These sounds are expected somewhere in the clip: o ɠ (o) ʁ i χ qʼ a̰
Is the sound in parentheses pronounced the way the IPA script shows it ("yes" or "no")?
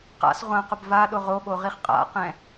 yes